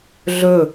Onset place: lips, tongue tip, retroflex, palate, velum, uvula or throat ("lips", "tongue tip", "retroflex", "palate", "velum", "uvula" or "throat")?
tongue tip